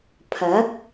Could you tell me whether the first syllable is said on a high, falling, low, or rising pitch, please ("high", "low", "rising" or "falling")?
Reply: rising